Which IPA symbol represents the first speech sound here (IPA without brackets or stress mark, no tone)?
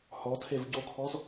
h